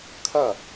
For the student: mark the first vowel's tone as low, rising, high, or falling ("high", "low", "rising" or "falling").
falling